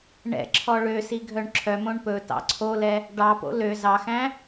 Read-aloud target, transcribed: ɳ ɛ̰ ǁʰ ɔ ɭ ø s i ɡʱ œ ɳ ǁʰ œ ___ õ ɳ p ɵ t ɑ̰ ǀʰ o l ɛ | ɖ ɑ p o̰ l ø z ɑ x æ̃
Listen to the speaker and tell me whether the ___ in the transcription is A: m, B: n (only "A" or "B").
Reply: A